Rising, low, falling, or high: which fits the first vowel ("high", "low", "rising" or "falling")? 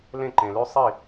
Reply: falling